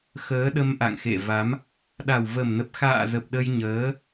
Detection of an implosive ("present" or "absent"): present